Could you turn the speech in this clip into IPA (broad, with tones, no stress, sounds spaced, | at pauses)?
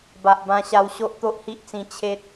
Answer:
b a˨ ʔ b ã˧ ɕ a˧ w ɕ o˦ ʔ t̪ o˦ ʔ h i˦ ʔ t͡s ĩ˧ t͡ɕʰ e˦ t̚